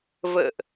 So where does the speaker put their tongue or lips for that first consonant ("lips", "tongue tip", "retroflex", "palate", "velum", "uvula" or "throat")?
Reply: lips